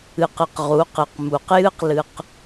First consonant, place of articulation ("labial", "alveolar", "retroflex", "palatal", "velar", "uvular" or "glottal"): uvular